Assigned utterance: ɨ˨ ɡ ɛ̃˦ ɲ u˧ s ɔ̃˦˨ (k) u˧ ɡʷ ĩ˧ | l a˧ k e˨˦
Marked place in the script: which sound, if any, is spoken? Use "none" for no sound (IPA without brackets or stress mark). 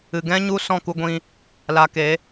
k